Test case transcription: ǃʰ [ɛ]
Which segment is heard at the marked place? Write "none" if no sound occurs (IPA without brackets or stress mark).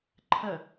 ə